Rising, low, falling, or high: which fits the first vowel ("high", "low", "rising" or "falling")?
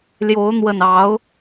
rising